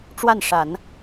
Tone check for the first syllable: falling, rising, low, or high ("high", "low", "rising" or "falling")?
falling